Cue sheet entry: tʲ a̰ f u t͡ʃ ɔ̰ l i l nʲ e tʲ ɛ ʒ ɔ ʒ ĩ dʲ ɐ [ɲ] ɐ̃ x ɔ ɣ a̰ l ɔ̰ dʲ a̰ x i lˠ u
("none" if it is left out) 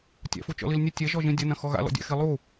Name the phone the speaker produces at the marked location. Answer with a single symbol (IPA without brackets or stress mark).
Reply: n